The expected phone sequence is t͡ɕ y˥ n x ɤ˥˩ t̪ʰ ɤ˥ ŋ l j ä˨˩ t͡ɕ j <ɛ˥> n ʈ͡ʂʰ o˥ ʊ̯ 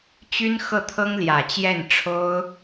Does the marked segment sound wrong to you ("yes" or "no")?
yes